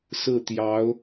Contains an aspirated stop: no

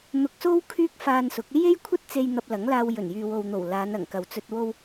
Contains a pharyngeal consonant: no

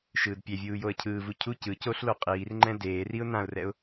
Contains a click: yes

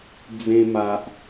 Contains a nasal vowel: yes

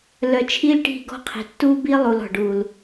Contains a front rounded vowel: yes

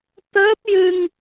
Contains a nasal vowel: no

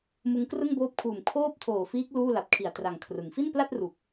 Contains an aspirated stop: yes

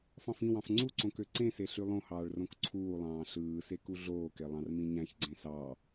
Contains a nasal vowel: yes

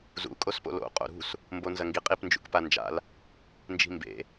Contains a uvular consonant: yes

